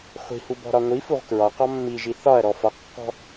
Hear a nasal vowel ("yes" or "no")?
no